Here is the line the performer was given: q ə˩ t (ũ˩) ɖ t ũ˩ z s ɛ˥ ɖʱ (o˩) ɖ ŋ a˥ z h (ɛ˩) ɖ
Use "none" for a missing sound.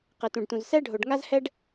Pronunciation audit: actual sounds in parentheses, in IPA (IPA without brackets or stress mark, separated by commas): ũ˩, o˩, ɛ˥